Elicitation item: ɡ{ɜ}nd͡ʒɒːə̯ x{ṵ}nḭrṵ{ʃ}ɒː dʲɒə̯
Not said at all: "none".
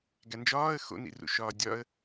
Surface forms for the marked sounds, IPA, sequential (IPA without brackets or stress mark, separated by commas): æ, o̰, ʃ